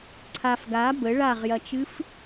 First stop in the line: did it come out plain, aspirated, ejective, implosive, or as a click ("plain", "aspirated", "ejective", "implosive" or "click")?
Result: click